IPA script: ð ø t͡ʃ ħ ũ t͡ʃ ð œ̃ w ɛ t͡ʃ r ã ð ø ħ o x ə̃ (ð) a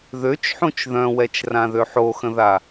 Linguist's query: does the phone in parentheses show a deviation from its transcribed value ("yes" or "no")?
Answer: no